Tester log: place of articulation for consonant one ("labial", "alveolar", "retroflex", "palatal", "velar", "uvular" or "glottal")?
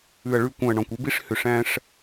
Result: retroflex